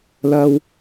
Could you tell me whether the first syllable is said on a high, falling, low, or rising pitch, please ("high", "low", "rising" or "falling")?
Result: high